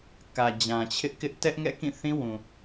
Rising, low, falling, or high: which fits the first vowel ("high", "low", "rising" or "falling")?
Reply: low